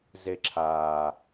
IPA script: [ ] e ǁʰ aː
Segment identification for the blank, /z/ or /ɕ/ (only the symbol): z